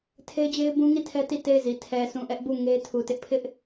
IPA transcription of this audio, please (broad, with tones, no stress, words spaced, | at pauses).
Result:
tʰe˦ɪ̯d͡ʑe˦ɪ̯bũ˦ ŋi˦˨tʰɛ˦ ti˦˨te˦˨ɪ̯zi˨ tʰɛ˨sũ˨ ʔɛ˦ʔbu˦˨ŋe˦tʰu˨ tɪ˦ʔpʰɪ˦ʔ